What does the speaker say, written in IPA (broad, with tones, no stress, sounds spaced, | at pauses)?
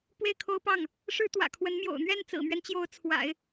p w e˥˩ ɪ̯ kʰ o˥ ʊ̯ p ɑ˥˩ ŋ | ʂ ɻ̩˥ t̪ w ä̰˨˩ kʰ w ə˧˥ n m j o̰˨˩ ʊ̯ n̪ ɥ ɛ˥˩ n t͡s ɹ̩˨˩ m ɥ ɛ˦ n t͡ɕ j o˧˥ ʊ̯ t͡sʰ w a̰˨˩˦ ɪ̯